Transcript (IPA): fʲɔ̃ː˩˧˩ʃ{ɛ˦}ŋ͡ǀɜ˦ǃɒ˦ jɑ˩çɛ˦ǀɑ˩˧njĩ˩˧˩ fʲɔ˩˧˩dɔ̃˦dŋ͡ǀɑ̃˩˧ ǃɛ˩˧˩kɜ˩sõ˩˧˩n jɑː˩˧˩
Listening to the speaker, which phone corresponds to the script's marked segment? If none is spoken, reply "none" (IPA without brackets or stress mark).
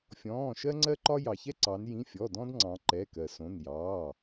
ɜ˦